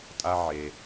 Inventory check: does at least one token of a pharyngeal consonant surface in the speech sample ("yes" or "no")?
yes